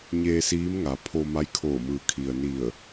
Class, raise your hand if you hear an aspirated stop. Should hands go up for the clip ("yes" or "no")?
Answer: yes